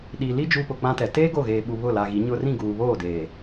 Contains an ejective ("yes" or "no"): no